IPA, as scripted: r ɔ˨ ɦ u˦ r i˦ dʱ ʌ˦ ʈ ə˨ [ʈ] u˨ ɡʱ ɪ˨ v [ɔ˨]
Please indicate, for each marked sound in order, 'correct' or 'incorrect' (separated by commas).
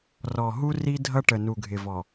incorrect, correct